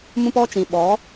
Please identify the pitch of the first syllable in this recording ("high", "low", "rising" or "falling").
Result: high